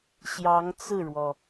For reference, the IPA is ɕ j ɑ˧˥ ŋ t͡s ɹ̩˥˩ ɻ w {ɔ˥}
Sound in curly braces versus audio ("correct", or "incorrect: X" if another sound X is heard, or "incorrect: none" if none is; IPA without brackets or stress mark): incorrect: ɔ˩